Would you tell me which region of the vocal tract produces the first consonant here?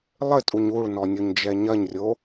tongue tip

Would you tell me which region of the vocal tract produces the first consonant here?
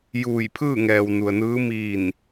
palate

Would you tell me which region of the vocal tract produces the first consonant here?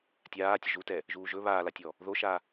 tongue tip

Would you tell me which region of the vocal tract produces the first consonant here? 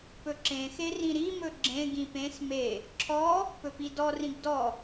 lips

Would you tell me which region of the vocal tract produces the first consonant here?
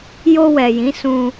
palate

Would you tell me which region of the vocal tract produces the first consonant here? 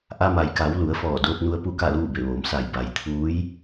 throat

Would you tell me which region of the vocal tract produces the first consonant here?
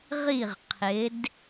uvula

